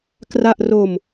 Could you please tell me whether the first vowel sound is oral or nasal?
oral